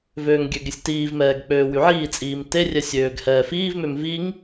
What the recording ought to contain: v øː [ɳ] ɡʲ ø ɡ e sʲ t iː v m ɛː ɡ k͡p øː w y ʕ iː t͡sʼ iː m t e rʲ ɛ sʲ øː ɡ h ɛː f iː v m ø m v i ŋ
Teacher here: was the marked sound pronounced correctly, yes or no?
no